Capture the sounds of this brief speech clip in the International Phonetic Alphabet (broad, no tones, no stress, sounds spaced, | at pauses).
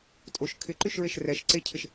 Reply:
tʼ o ʃ kʰ ɪ ǃ y ʃ ɹ e ʃ r ɛ ʃ ǀ e cʰ ɪ ʃ